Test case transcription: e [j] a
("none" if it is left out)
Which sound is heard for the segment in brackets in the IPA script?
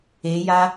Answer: j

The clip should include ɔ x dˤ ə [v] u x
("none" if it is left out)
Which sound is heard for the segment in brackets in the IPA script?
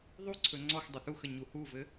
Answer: θ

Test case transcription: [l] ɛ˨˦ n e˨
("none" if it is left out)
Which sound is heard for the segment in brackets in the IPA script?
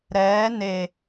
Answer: ɾ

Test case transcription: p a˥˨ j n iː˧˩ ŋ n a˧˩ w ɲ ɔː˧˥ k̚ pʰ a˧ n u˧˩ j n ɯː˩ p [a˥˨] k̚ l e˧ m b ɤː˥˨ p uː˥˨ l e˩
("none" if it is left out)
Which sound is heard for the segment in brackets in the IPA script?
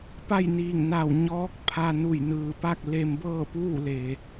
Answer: a˥˨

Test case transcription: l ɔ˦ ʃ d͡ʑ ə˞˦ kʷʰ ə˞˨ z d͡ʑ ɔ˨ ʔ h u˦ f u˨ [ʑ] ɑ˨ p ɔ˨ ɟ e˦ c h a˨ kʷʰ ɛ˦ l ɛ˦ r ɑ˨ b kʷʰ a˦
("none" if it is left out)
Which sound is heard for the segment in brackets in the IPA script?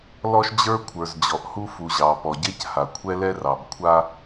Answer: ʑ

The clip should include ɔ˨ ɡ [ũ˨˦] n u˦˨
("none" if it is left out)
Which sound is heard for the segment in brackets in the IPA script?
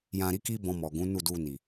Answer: ũ˨˦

